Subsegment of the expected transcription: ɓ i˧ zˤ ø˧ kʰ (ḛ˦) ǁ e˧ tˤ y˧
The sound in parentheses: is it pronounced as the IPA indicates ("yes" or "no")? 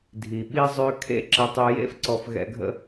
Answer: yes